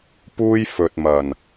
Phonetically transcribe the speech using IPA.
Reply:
p uː˥ j f ɵ˨ t̚ m ɐ˨˩ n

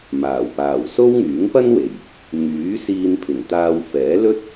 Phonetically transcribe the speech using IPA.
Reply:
m aː˨˩ w p aː˨˩ w s o˥ w ŋ yː˨˥ ŋ p ɐ˥ n w e˨˩ j | ŋ yː˨˥ s iː˧ n pʰ ɪ˨˩ ŋ t̪ aː˧ w f ɛː˨˥ l ɵ˥ t̚

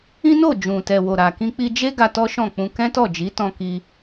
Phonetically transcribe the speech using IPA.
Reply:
ĩ˦ n o˦˨ d͡ʒ ũ˨ t ɛ˨ w o˨ ɾ a˨ k ĩ˧ k͡p i˧ d͡ʒ e˦ ɡ a˧ t ɔ˦ ʃ ɔ̃˦˨ k͡p ũ˧ k ɛ̃˦ t ɔ˦˨ d͡ʒ i˨˦ t ɔ̃˧ k i˧

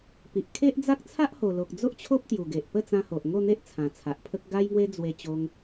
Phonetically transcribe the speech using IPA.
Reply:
p i˨ ʔ kʰ e˦ ʔ d͡z a˦ k̚ t͡sʰ a˦ ʔ h o˨˩ l o˨ k̚ d͡z o˦ ʔ t͡ɕʰ o˦ p̚ t̪ j u˨˩ ɡ e˨ ʔ p ə˥˧ t͡s ã˧ h o˨ ʔ ŋ o˥˧ n̪ e˦ ʔ t͡sʰ ã˨˩ t͡sʰ a˨ ʔ pʰ ə˦ k̚ ɡ a˧ j ŋ w e˧ d͡z w e˧ t͡ɕ o˧ ŋ

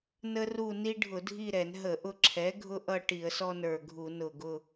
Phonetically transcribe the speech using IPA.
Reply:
n ə˦ r u˦˨ n i˦ ɖʱ ʊ˧˩˧ dʱ i˦˨ ɾ ɛ˧˩˧ n ɦ ə˧˩˧ ʔ ʊ˦˨ ǁʰ ɛ˩˥ ɡʱ ʊ˦ ʔ ʌ˦˨ ʈ i˧˩˧ ə̯ s ɔ˦ n ə˞˨˩ ɡʱ u˧˩˧ n ʊ˨˩ ɡ ʊ˦˨

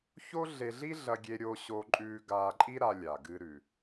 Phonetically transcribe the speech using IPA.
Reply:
ç o˥ ɮ e˧ ɮ i˥ ɮ ɐ˧ ɡʲ e˧ ɾʲ o˧ ɕ o˧ ǃʼ ʉː˧ ɡ aː˧ ǃʼ i˥ ɾ a˧ lʲ a˩ ɡ ɨː˧ ɾ ʉ˩

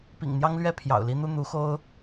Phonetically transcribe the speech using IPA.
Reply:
p ḭ˨˩ ŋ n̪ j ɑ˦ ŋ l ɥ ɛ˥˨ pʰ j ɑ̰˨˩ ʊ̯ l i˦ n̪ u˦ n̪ u˨˦ x o˦ ʊ̯

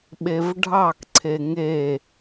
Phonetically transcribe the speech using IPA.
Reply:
ɓ e v ɖʱ ɑ k ǀʰ e ŋ e

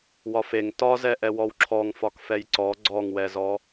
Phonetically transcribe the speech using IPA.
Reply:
w ɒ f e ŋ t ɒ z ɛ ʔ ɛ w ɔ w ǁʰ ɔ ŋ f ɒ k f ɛ j ǀ ɔ ɡ͡ǀ ɔ ŋ w ɛ z ɔ

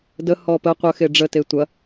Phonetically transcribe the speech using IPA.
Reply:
d ə h ɔ p ə qʷ ə x e ɖ͡ʐ ə t e tʷ ɐ

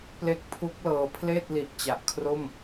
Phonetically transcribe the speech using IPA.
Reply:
p l e˦˥ k̚ pʰ u˦˥ k̚ l ɤː˧ pʰ l eː˥˩ t̚ l i˨˩ ʔ t͡ɕ a˨˩ ʔ kʰ r o˥˩ m

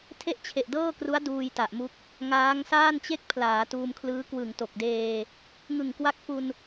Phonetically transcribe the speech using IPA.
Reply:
tʰ e˥˩ ʔ t͡ɕʰ e˨˩ ʔ d ɤː˥˩ k r u˦˥ a̯ d uː˧ j t a˨˩ ʔ m u˦˥ k̚ | ŋ aː˦˥ ŋ s aː˥˩ n t͡ɕ e˥˩ k̚ pʰ l aː˩˦ t uː˧ m kʰ l ɯː˦˥ k w ɯ˨˩ ŋ t o˨˩ k̚ d eː˧ | ŋ ɯ˨˩ ŋ k w a˦˥ k̚ f u˧ n

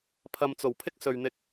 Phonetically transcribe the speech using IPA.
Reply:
pʰ ɐ˨ m t͡s o˨˩ w pʰ ɪ˥ k̚ s ɵ˨ ɥ n̪ ɪ˧ k̚

